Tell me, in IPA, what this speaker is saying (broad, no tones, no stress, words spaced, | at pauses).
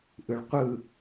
ʔɯɭqʷɯ